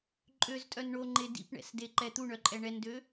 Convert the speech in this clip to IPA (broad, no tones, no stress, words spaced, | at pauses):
ǃʼøztʼœn ɳoŋ͡ǃe dḭpɳɛ̰sdeǃɛ t̪uɳœǃʼɛ ɳɛndø